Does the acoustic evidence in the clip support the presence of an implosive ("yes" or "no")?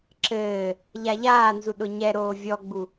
yes